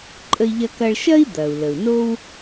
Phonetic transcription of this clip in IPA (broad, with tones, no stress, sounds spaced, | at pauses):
ǃʼ ə˧ i̯ ʎ ɐ˧ k ɐ˧ ɭ ʃ ɐ˥ i̯ d̪ ɐ˩ u̯ l ə˩ u̯ n o˥ w